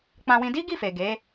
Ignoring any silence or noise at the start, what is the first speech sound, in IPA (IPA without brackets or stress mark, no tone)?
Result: k͡p